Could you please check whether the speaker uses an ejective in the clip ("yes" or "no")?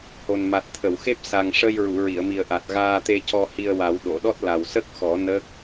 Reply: no